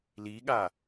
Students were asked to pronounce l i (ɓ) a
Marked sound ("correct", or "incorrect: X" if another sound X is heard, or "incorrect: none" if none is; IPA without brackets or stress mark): incorrect: ɠ